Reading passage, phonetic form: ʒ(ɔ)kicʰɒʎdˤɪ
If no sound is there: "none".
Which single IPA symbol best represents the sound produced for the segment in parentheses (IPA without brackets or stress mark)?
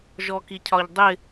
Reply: ɔ